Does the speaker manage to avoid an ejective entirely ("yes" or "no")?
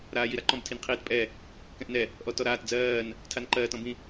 no